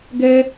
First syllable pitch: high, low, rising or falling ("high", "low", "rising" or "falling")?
high